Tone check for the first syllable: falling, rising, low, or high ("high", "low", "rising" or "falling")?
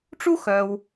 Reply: high